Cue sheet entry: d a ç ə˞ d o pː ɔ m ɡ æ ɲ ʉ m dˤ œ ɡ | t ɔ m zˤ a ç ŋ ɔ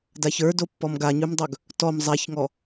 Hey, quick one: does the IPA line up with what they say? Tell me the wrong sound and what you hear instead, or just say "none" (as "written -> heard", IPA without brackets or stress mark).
æ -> a